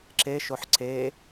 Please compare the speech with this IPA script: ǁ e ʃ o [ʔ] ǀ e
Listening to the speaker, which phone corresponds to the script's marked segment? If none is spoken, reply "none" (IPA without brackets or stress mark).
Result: ħ